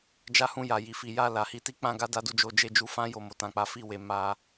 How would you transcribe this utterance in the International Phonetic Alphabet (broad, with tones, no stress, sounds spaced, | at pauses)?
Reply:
d͡ʒ a˦ h ũ˧ j a˨ j i˨ f i˨ j a˧ l a˨ h i˧ t i˧ k͡p ã˧ ɡ a˦ d a˦ d u˦˨ d͡ʒ o˧ d͡ʒ e˧ d͡ʒ u˧ f ã˦ j o˦˨ m o˧ t ã˧ k͡p a˦ f i˦˨ w e˨˦ m a˦